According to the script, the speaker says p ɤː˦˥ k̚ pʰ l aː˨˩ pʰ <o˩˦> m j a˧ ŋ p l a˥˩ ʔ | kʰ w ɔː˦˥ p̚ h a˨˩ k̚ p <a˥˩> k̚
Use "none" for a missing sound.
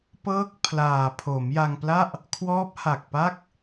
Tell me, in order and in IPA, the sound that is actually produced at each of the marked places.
o˩˦, a˥˩

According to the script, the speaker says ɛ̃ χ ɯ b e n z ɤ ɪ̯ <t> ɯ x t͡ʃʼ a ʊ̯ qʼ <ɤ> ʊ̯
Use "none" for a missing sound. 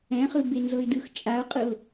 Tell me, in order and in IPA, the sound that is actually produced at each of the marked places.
d, ɯ

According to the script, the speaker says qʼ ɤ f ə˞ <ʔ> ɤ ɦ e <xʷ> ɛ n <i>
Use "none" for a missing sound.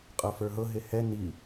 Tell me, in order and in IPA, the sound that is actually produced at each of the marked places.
ɦ, h, i

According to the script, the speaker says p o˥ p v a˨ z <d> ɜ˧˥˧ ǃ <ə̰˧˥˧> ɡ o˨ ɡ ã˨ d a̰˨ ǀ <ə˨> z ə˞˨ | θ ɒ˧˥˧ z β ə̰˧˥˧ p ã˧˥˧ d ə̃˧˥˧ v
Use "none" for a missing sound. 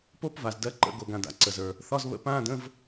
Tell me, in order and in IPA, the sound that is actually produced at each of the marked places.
d, ə̰˧˥˧, ə˨

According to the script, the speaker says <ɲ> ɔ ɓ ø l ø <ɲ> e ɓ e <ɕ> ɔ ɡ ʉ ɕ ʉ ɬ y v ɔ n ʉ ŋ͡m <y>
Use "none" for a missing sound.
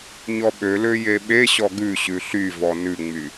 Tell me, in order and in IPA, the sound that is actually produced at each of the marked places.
ɲ, j, ɕ, y

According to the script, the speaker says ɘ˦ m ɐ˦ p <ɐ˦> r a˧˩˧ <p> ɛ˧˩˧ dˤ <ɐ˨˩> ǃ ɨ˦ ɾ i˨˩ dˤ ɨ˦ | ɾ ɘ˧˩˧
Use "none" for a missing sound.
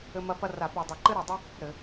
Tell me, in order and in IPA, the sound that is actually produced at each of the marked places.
ɐ˦, p, ɐ˨˩

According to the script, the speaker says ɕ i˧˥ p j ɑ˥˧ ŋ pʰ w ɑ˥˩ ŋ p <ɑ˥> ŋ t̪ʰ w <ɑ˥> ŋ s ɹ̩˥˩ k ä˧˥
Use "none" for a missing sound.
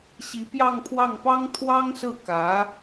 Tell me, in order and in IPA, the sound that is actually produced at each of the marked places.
ɑ˥, ɑ˥

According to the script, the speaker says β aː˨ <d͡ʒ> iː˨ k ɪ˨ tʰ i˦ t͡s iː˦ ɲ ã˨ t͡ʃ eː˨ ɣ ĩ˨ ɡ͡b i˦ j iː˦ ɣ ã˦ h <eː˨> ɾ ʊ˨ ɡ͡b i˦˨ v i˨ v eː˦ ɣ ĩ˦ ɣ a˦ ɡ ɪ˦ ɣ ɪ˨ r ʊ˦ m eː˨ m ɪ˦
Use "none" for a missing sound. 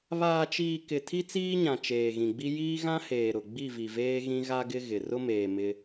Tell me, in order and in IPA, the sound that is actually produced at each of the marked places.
t͡ʃ, eː˨

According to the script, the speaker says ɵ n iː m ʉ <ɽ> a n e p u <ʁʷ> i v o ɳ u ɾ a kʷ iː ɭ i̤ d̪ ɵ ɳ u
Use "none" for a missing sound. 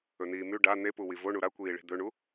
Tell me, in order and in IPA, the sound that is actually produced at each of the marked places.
ɖ, w

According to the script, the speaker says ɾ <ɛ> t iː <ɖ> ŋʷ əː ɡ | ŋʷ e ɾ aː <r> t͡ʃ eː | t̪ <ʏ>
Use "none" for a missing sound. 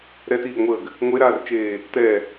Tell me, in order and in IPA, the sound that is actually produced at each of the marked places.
ɛ, ɡ, r, ɛ

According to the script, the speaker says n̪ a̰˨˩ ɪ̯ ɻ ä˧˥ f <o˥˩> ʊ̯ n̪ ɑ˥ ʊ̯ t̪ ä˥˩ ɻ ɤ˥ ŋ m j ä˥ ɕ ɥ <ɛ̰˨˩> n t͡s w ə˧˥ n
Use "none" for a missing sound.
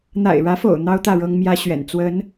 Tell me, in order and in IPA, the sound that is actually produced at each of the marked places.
o̰˨˩, ɛ̰˨˩

